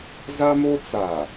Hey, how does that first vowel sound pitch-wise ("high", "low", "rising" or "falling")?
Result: high